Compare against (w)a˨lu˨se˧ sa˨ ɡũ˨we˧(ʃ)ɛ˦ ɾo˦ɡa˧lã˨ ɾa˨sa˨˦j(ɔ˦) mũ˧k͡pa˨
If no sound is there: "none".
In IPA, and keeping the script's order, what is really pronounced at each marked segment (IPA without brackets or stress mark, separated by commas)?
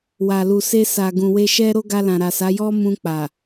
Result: w, ʃ, ɔ˦